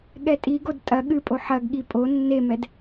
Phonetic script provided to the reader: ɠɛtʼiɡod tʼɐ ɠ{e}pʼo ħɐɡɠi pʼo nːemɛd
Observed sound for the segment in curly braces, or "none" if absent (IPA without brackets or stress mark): ɨ